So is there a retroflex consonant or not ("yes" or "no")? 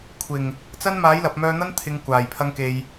no